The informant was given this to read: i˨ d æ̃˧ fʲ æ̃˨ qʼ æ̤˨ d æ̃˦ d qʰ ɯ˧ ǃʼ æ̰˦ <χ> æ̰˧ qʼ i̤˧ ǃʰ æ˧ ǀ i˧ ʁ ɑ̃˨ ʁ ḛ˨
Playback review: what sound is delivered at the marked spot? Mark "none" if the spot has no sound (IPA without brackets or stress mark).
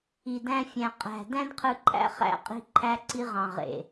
χ